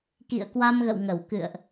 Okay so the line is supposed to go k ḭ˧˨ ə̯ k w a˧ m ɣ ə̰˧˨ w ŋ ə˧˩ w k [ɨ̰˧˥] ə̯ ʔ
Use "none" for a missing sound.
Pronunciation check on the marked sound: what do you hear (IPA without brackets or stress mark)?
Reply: ɨ̰˧˨